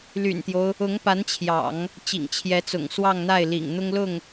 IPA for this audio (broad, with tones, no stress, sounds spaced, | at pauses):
l y̰˨˩ n t̪ j o˦ ʊ̯ | ʊ˧˥ ŋ p a˧˥ n t͡ɕʰ j ɑ̰˨˩˦ ŋ | t͡ɕ ḭ˨˩ ŋ t͡ɕʰ j ɛ˧˥ t͡s ʊ̰˨˩ ŋ s w ɑ˥˧ ŋ n̪ a˥˩ ɪ̯ l ḭ˨˩ ŋ n̪ ʊ˥ ŋ l ʊ˥˩ ŋ